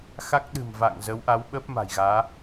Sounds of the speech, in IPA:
x a˦˥ k̚ ɗ ɨ̤˨˩ m v a̰ː˧˨ ŋ z ə˨˦ w ʔ a˨˦ w ɓ əː˦˥ p̚ m a̤˨˩ j ɣ aː˨˦

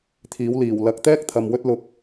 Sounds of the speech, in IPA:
t̪ʰ iː˨˥ w l iː˨˩ w l ɐ˨˥ k̚ t̪ ɛː˥ k̚ t̪ʰ ɐ˧ m w ɵ˥ t̚ l ʊ˧ k̚

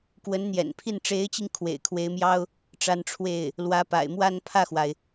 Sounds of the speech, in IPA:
k w ə˧˥ n n̪ j ɛ̰˨˩ n pʰ i˥˩ n ʈ͡ʂ e˧˥ ɪ̯ t͡ɕ i˧ ŋ kʰ w ḛ˨˩ ɪ̯ kʰ w e˧˥ ɪ̯ m j ɑ˥ ʊ̯ | ʈ͡ʂ a˧˥ n ʈ͡ʂʰ w e˥˩ ɪ̯ | l w ä˧˥ p a̰˨˩ ɪ̯ m w a˥˧ n pʰ ä˥˩ x w a˩ ɪ̯

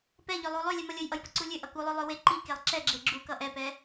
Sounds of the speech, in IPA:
p ɛ ʎ ø lˠ u lˠ ø lʲ ɛ m ʌ lʲ ə j ʔ ʌ j p ə ǀ u lʲ ø ʔ ʌ k u lˠ ø lˠ ø w e ǃ i k e lˠ ǁ ɛ ɡ͡ǁ e ɡ͡ǁ u k ʌ ʔ ɛ p ɛ

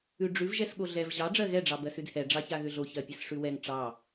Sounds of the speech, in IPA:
ʉ ɖ͡ʐ ʉ v ʒ ɛ s ɠ o ɮ ɛ v ʑ ɑ ɖ͡ʐ ɜ ɣ ɛ ɖ͡ʐ ɑ b ɜ s ʉ d h ɛ ɖ͡ʐ ɑ ç a ɣ ʏ ɮ o ç ɜ pʲ ɛ s ʂ ʉ w ɛ ŋ ʈ͡ʂ ɑ

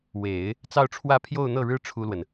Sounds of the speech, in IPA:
w e˨˩˦ ɪ̯ | t͡s ɑ˥˧ ʊ̯ ʈ͡ʂʰ w ä˥˧ pʰ j o˥˧ ʊ̯ n̪ ɤ˥˩ ɻ ɻ̩˥ ʈ͡ʂʰ u˥ l w ə˨ n

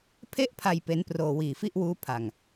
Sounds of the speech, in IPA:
pʰ e˥˩ ʔ pʰ a˧ j p e˦˥ n p r oː˧ w iː˨˩ f i˥˩ ʔ w uː˦˥ pʰ a˧ ŋ

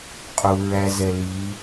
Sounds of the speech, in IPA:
qʼ u ɹ æ z ɛ l i

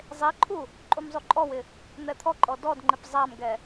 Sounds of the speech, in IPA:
zˤ e ǃʰ u | ǃʼ u m zˤ u ǃʼ ɔ w ɪ | n̪ ɛ t̪ʰ ɔ ǃʼ ɔ d ɔ d ŋ͡ǃ ɪ p zˤ a m ɡ ɛ

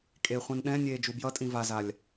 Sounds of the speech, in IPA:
kʼ e χʷ ɛ̃ n ɗ ɛ̃ nʲ eː d͡ʒ u b j ʌ tʼ ĩ v a z a lʲ

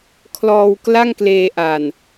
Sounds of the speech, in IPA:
kʰ l ɔː˧ w k l a˥˩ ŋ k l eː˧ ʔ a˨˩ n

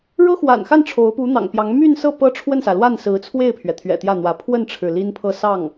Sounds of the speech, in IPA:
ɻ ɤ˥ x w a̰˨˩ n x a˥˩ n ʈ͡ʂʰ o˧˥ ʊ̯ p u˧˥ n̪ ɑ̰˨˩ ŋ p j ɑ˧˥ ŋ m y˥˧ n s ɤ˥˩ p ɤ˥ ʈ͡ʂʰ w ə˥˩ n s ä˩ l w a˥˩ n s ɹ̩˧˥ t͡sʰ w e˥˩ ɪ̯ pʰ ɥ ɛ˩ t̪ʰ ɥ ɛ̰˨˩ t̪ j ä˥˩ n̪ w ä˧˥ pʰ w ə˥˩ n ʈ͡ʂʰ ɻ̩˩ l i˥ n pʰ ɤ˥˧ s ɑ˥˩ ŋ

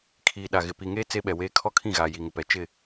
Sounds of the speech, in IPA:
kʰ iː˨ ɗ a˨ ɣ ɪ˨ p i˨ ŋ eː˦ t͡s e˦ ɓ ɛ˨ w eː˦ kʰ ɔ˦ kʰ ĩ˦˨ ɣ aː˨ j i˨ ŋ ɪ˨ p ɛ˨ t͡ʃ ɪ˦˨

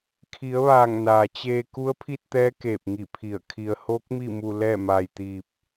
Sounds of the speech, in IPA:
kʰ i˩˧ ə̯ ʋ aː˧˩ ŋ n aː˩ t͡ɕ eː˧ k u˧˥ ə̯ pʰ i˥˨ t̚ t̪ ɛː˧˥ k eː˧˩ p̚ ŋ i˧˩ pʰ i˧˩ ə̯ kʰ i˧ ə̯ h oː˧˥ k̚ m i˥˨ m u˧ l ɛː˥˨ m aː˧ j t̪ iː˧ p̚

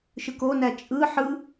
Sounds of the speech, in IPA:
ʃ ɯ k o n æ t͡ʃʼ ɯ ħ ɯ

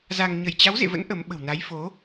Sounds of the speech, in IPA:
z a˧ ŋ ɲ ə˧˩ j t͡ɕ a˨˦ w z ḛ˧˨ v ə̰˧˥ n ʔ ə˨˦ m ɓ ə̤˨˩ w n a˨˦ j f o˨˦

